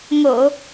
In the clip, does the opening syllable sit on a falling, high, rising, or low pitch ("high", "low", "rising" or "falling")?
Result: low